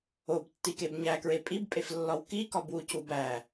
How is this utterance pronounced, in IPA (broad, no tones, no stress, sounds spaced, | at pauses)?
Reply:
o b tː i k e b ɲ æ k ɹ e pʼ i b pʼ e f lː ɒ w k i k ɒ b w u c u b æ